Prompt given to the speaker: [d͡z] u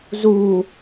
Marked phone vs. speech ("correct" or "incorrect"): incorrect